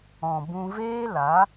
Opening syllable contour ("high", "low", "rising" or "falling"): low